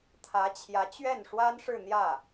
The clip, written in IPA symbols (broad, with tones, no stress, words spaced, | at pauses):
t̪ʰä˧˥ t͡ɕʰjä˧˥t͡ɕɥɛ˥˩nʂwa˥nʂɻ̩˥˧ n̪jä˥˩